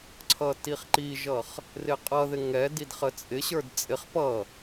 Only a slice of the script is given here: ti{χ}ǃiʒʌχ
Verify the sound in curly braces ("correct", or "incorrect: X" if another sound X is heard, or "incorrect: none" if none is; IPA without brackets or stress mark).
correct